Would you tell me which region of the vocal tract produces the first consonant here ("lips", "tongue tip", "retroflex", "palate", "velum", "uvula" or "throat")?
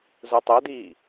tongue tip